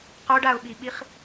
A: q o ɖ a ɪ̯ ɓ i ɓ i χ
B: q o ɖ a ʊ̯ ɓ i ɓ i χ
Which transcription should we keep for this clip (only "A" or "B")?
B